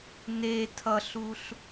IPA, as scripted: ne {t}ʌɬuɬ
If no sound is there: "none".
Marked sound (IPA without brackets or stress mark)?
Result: tʰ